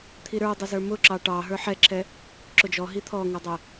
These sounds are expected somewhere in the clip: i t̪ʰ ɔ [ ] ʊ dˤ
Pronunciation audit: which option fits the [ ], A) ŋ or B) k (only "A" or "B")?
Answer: A